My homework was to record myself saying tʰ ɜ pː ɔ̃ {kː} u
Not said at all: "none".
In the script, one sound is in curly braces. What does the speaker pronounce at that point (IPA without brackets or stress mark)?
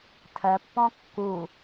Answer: kː